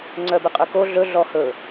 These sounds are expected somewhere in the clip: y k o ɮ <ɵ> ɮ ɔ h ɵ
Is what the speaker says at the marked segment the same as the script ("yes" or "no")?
yes